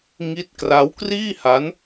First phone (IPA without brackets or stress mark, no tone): ŋ